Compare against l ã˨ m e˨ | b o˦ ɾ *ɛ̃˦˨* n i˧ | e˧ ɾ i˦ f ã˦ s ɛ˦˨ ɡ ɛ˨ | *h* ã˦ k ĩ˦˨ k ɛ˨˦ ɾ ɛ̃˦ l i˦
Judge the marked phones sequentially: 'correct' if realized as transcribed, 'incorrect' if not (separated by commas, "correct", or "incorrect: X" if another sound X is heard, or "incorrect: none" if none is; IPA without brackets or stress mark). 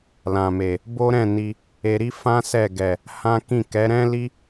correct, correct